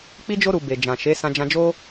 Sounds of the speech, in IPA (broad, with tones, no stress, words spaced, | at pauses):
k͡pi˦d͡ʒo˦ ɾu˧be˨ d͡ʒã˨ʃe˨˦sã˧ d͡ʒã˧d͡ʒo˦